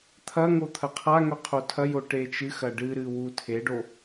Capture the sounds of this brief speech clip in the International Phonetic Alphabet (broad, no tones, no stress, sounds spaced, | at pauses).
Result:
t̪ʰ ɐ ŋ o t̪ʰ ɐ qʰ a ŋ ɵ qʰ o tʰ ɐ j o ʈ e t͡ʃ ɨ x ɐ ɖ ɨ ɾ ɨ w u tʰ e ɖ o